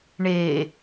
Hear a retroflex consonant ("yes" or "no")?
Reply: yes